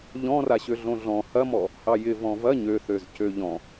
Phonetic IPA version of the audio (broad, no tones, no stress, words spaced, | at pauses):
ʎɔ̃raɕø ɮõɮɔ̃ hɐmɔ | hɑjɪ vɔ̃vɐ ɲøθøzcø ʎɔ̃